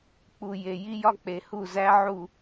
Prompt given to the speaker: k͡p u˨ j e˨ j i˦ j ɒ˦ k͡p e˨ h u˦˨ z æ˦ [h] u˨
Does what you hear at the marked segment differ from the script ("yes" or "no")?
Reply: yes